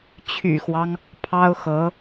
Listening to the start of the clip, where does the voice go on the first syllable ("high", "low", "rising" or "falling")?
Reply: low